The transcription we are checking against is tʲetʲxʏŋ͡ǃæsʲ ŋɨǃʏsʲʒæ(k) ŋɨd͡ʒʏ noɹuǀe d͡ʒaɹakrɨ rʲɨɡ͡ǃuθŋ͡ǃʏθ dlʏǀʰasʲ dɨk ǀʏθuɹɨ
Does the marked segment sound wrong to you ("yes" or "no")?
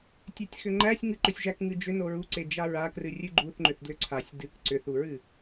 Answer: no